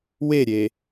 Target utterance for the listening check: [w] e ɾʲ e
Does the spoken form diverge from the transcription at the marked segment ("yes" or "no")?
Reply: no